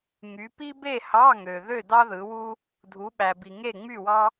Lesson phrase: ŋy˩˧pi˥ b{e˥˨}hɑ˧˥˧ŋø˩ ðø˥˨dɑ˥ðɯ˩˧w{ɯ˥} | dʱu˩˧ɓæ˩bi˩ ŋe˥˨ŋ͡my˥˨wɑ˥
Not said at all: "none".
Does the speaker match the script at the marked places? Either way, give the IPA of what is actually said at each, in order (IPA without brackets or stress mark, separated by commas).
e˥˨, u˥